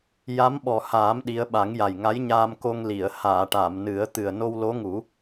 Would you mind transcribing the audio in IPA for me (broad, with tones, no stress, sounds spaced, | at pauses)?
j a˧˥ m ɓ ɔ˨˩ h aː˨˩˦ m ɗ i˧˥ ə̯ ɓ a˨˩˦ ŋ j a˨˩ j ŋ a˧˥ j ɲ aː˧ m k o˧ ŋ l i˨˩˨ ə̯ h aː˨˩˨ ʈ a˨˩˨ m n ɨ˨˩˦ ə̯ t̪ ɨ˨˩ ə̯ n o˧ w l o˧˥ ŋ u˨˩˦